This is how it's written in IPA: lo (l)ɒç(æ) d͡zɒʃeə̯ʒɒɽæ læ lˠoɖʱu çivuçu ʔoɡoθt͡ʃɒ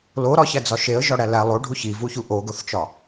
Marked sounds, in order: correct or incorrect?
incorrect: ɾ, correct

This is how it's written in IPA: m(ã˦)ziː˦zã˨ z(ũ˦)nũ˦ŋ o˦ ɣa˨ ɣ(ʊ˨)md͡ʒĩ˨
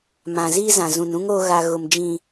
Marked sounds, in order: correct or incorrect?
incorrect: ã˨, incorrect: ũ˨, correct

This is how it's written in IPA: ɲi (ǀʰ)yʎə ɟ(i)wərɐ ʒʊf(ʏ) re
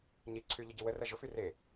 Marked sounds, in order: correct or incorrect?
correct, correct, incorrect: y

